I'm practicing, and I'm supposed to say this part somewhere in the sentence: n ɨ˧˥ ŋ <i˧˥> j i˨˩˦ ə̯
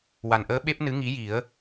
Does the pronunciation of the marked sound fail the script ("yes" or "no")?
no